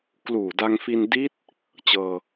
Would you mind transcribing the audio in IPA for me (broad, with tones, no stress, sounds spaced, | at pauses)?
k l uː˨˩ d a˧ ŋ f i˧ n d i˦˥ t̚ | t͡ɕ ɤː˧